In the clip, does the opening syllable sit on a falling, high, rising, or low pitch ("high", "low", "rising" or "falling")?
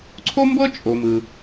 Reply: high